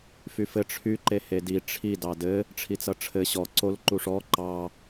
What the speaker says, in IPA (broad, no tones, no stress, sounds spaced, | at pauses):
f y f ɘ ʈ͡ʂʰ y ǃ e h e d i ʈ͡ʂʰ i d ɑ d ɘ | ʈ͡ʂʰ i t͡s ʌ ʈ͡ʂʰ ɘ ɕ ɔ ǀ o l ǃ u ʂ ɔ ǃ ɑ